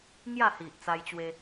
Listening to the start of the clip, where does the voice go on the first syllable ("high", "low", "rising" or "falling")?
falling